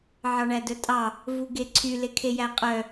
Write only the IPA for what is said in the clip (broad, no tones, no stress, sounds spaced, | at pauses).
ʕ ɑ ɳ æ d œ tʼ ɑ | v u ɡ e ǀʰ y l e kʰ e j æ qʼ œ